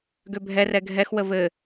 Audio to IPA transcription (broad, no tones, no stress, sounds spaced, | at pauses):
ɡ ø bʱ ɛ r ɛ ɡʱ ɛ x w ə v ɘ